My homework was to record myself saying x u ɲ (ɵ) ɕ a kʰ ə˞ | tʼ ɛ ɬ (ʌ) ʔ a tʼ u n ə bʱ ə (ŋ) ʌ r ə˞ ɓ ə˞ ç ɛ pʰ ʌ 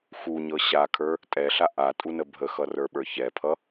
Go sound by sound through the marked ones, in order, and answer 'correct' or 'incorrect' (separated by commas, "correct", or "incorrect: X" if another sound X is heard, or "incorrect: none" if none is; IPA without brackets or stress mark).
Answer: incorrect: ɤ, incorrect: a, incorrect: x